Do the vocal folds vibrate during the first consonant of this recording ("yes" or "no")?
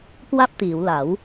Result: no